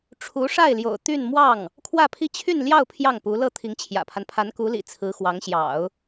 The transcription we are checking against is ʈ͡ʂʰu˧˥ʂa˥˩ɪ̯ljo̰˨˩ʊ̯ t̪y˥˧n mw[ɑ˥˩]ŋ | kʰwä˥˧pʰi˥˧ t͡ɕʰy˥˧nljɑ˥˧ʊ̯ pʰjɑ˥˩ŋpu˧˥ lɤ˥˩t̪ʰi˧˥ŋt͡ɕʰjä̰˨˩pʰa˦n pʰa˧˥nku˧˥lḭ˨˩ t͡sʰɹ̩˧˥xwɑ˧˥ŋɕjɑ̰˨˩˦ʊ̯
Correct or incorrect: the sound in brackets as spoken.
correct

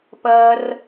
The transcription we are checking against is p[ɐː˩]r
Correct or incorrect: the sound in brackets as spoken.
correct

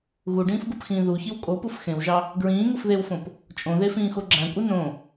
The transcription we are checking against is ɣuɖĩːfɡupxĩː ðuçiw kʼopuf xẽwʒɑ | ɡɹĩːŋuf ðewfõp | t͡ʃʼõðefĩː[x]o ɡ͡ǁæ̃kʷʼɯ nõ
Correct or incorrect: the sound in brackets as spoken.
correct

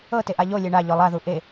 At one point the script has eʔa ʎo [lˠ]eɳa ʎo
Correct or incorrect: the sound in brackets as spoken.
incorrect: lʲ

